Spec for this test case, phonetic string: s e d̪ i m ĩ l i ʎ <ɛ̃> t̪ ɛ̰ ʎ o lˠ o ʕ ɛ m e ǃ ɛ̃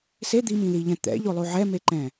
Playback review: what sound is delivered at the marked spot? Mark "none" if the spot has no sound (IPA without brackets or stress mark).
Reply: ɛ̃